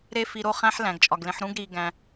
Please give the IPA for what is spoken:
ɾe˦fi˧ɾo˧χæ̃˦ħ læ̃˨ɡt͡ʃʼɒ˨ɡlẽ˧ħ ɾũ˦ɡɾiː˧ ɡæ̃˧

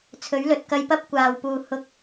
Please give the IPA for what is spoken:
t͡sʰɵ˨˥ɥlɵ˨t̚kɐ˧jpɐ˥p̚ kʷaː˨˩wpuː˨˩ hʊ˨k̚

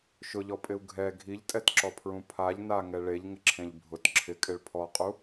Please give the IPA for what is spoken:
ʃʊʎɔpʼɪu̯ ɡʱɛ ɡʱiʎtʼɛtǁɔpʰɹũ pʰaʎ naŋɛ ɭeʎŋɪǁʰẽʎ bʱʊt ǁʰɪkʼɪɭ pʰɔqʼu

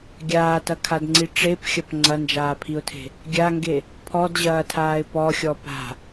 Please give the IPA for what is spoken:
ɡʲaːtɐkʰadŋ͡ǀi ʈ͡ʂepxʲɐp ŋ͡ǀɐnd͡ʒaːpʰiʊ̯tʰe̤ | ɡʲaŋɡe | pʰɔdʑɐːtʰaːɪ̯ pɔxʲɔ pa̤

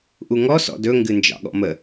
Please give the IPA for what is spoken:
ʔuŋɔ sɔ̰dɵ ŋɡɨnd͡ʒɑ̰ɠɔ̰mə

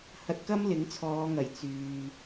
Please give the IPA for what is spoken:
hɐ˧t̚kɐ˥m lɪ˨˥ŋt͡sʰɔː˨˧ŋɐ˨˩j t͡syː˨

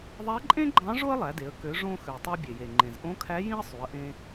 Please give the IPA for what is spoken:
ðˤæ˧˥ǃʼẽ˥ɡ͡ǃɑ̃˧˥ ʐo˥ə̯lˠæ˩˧de˩˧ə̯ kø˩˧ʐõ˧xø˩ tˤɑ˧bʲe˩je˩ŋ͡ǃẽ˩z ʔõ˧˥kʰæ˧˥ jĩ˥ə̯sˤy˩˧ə̯ʔẽ˧

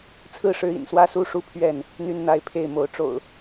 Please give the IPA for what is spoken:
t͡sʰɹ̩˥˨ʂɻ̩˨˦ḭ˨˩nswä˦ su˥˨ʂu˥˨pʰɥɛ˥˨n | n̪y˦nn̪a˨˦ɪ̯pʰe˥˨ɪ̯mo˨˦ʊ̯ ʈ͡ʂo̰˨˩ʊ̯

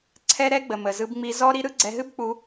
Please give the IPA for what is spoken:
ǀʰɛ˦ɾɛ˦ ɡ͡bə˨mə˨zɯ˧bŋ͡mi˧ zɔ˦ɾi˦ɾɯ˦ ɡ͡ǀɛ˧ɦɨ˦b k͡pu˧

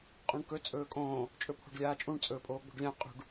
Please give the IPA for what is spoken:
qʼũɳkɵ t͡sʼɵːkʼõː | t͡ʃʼɵpʰo̤ɖlʲaːt͡ʃʼũɳ t͡sʼɵːpʼoːɡ͡bo̤ɖlʲã qʼṳɖ

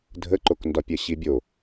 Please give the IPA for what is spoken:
dʱəǃokndɒpʲɜ ɕibʲo

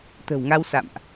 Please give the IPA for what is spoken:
t̪ə̤˨˩wŋa˧wsa̰˧˨mʔ

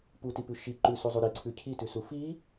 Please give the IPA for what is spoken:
putipʉ ʃi ǃʉsuzˤu ɾiǀʰʉ cʰitʉsu fi

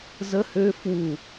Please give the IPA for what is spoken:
zə hø fwu

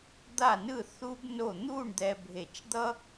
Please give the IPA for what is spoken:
d̪a˥˧nɯ˥˧ θu˥bno˥˧ n̪u˥˧ɳd̪ɛ˧bʱe˧˩t͡ʃd̪ʌ˥

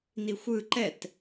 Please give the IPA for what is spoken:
nixʷɯ ǃɛt

